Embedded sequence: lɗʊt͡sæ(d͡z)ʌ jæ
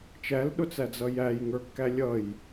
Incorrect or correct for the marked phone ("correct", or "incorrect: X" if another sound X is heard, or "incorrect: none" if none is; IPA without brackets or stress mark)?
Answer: correct